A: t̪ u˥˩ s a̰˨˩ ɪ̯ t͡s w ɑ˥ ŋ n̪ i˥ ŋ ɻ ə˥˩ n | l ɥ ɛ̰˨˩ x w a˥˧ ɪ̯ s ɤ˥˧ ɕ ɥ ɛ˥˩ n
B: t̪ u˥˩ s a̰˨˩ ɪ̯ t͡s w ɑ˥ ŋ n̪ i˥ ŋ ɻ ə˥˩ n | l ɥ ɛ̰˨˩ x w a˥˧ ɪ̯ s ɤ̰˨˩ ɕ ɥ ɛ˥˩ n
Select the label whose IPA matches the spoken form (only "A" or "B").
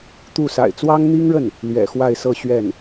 A